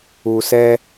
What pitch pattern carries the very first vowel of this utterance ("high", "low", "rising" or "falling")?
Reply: low